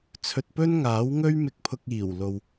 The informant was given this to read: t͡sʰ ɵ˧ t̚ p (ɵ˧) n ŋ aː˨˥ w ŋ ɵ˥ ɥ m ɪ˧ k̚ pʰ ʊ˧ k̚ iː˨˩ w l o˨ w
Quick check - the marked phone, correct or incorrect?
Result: incorrect